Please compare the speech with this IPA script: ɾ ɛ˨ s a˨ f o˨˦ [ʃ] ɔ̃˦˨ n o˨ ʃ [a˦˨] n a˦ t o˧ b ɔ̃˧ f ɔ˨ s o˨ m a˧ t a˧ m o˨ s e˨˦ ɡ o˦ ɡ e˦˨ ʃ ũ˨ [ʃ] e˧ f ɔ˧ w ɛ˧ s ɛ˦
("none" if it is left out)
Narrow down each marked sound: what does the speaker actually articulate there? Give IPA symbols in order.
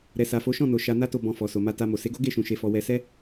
ʃ, a˧, ʃ

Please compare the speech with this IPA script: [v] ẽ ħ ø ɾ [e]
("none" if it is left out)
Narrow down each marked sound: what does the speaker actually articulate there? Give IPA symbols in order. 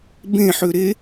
b, e

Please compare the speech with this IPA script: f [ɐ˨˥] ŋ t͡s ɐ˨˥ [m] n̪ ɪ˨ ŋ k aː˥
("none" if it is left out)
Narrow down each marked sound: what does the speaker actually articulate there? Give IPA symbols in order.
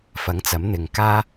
ɐ˨˥, m

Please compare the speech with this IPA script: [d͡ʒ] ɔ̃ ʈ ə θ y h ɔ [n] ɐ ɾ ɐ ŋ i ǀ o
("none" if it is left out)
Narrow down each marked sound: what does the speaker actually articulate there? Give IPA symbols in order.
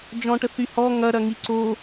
d͡ʒ, ŋ

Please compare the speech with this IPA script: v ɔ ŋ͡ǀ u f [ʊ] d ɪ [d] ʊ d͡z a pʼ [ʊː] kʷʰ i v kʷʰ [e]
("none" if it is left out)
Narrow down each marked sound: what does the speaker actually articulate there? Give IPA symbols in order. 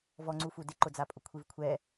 u, ǃ, ʊ, ɛ

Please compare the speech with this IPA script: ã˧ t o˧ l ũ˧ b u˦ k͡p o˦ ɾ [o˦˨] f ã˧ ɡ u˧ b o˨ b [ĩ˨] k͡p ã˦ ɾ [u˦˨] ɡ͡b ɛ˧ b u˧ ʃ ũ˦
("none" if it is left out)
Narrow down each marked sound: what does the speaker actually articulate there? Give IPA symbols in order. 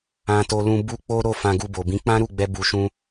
o˦˨, ĩ˨˦, u˦˨

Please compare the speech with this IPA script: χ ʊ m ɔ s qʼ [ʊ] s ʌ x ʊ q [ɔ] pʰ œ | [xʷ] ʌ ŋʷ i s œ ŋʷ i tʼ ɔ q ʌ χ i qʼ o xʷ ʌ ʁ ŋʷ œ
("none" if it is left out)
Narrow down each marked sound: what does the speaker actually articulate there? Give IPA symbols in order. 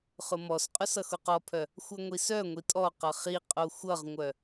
ʊ, ɔ, xʷ

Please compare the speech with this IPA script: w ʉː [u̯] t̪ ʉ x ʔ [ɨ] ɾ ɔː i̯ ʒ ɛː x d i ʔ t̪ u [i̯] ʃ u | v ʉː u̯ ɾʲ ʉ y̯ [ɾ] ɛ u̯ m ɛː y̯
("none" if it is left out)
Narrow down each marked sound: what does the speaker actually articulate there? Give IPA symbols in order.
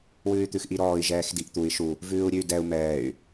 y̯, i, i̯, d

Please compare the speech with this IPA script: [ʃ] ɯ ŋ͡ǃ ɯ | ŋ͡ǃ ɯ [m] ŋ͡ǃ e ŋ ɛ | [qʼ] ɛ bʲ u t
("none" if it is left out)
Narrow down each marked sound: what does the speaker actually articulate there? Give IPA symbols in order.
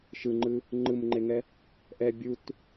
ʃ, m, ʔ

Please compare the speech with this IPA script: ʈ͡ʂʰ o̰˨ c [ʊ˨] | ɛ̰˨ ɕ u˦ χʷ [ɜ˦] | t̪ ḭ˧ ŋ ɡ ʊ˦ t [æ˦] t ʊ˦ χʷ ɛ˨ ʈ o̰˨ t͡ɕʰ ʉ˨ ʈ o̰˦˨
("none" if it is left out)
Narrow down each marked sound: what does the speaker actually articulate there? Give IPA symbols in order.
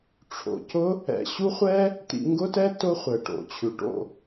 ʊ˦, ɛ˦, ɛ˦

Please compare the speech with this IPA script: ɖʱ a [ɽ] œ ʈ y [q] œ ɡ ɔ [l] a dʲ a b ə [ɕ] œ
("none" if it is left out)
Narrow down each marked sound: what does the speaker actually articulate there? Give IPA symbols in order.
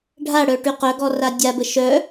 ɽ, q, r, ʃ

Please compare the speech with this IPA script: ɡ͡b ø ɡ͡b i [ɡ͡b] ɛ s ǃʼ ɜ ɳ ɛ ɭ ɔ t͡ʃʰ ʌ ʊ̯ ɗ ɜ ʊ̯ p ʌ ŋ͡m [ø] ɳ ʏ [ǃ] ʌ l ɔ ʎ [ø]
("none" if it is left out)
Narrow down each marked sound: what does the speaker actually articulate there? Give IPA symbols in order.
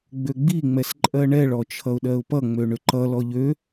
ŋ͡m, ø, ǃ, ø

